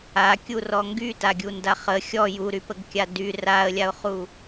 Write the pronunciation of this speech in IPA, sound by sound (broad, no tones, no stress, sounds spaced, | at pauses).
a kʲ u r ɔ ŋ ɡ y t a ɡʲ u n d a χ ə xʲ ɔ j u ɾ y p ə ɡ kʲ a d y r a ə̯ lʲ a ʊ̯ χ u